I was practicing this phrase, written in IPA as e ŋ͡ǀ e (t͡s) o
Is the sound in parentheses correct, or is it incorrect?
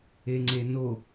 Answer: incorrect